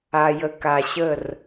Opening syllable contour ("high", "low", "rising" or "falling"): low